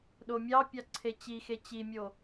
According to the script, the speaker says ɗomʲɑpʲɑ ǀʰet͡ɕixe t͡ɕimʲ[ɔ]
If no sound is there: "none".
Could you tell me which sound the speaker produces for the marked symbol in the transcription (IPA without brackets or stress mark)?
o